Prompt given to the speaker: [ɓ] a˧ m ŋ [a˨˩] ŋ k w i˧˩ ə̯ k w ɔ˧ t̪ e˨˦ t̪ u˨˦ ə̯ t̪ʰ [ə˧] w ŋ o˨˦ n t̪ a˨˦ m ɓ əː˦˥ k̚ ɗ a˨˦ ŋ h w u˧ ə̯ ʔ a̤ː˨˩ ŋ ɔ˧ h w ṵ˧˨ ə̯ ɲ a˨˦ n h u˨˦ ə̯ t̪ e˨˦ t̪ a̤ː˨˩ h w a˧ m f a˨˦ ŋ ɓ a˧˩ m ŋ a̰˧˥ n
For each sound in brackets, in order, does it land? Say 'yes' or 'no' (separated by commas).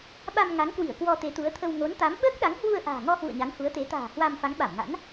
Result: yes, no, yes